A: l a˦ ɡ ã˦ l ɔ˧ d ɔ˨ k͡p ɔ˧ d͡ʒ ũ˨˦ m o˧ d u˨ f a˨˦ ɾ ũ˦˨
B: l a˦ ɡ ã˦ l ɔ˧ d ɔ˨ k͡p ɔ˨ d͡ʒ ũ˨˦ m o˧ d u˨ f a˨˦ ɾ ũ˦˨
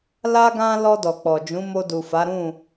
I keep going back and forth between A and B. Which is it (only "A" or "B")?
B